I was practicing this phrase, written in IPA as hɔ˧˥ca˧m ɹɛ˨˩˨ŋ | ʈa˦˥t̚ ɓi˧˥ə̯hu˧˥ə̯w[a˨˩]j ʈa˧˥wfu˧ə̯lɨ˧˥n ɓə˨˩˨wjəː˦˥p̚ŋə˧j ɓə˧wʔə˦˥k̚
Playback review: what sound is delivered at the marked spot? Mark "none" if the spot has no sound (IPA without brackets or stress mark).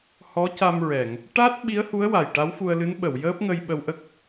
a˨˩